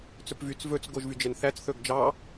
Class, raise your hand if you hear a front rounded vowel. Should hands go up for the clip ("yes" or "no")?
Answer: yes